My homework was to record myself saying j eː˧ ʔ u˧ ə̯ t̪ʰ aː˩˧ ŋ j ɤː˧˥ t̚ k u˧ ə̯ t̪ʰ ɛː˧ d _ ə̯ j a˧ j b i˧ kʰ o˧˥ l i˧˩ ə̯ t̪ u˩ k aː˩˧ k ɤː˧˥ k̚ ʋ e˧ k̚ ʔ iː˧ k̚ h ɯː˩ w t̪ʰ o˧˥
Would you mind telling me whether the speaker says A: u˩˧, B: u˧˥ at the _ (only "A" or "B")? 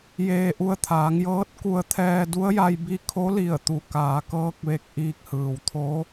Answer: B